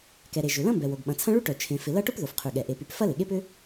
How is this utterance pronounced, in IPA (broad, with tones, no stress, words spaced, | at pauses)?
kɛ˩ɾe˩ ʒʏ˩lɐ̃˥mbɛ˩wo˩ɡ ɓɐ̃˩t͡sʰɐ̃˥ ɭy˥ʈœ˩ t͡ʃʰẽ˩fɪ˩ lɐ˥ʈʊ˥p ðo˩fqʰy˩ɠɛ˩ ʔe˩py˩p fɐ˥lɪ˩ɠe˥p ʏ˥